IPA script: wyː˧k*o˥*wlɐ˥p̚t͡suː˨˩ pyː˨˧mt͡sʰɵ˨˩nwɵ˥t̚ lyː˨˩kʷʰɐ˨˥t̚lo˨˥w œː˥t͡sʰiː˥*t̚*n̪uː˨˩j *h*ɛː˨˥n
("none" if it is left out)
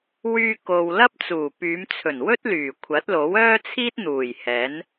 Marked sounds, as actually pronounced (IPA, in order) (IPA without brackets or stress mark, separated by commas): o˨, t̚, h